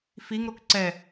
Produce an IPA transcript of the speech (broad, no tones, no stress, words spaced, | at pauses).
fiŋɾok ǀɛ